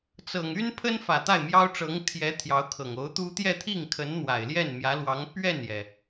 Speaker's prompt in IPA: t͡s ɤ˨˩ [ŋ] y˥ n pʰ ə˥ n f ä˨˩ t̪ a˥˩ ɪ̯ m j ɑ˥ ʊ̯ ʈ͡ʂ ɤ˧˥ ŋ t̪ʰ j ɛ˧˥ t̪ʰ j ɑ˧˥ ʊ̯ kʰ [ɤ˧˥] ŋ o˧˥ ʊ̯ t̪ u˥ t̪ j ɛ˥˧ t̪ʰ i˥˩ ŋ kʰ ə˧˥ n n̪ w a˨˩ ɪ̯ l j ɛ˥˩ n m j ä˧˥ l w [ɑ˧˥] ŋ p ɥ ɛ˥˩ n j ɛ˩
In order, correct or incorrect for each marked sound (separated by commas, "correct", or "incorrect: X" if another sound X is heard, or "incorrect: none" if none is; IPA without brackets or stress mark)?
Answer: correct, incorrect: ɤ˨˩, correct